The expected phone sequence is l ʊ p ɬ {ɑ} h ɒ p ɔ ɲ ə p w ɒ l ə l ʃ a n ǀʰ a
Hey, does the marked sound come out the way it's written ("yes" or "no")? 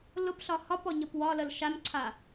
no